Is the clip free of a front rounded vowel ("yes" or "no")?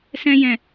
yes